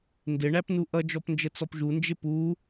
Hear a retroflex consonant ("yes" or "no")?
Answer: yes